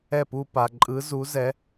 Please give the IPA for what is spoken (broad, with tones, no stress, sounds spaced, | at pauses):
ɛ˥˩ p u˥˧ p a˨ ǃʼ ɯ˨˦ z u˨˦ z ɛ˨˦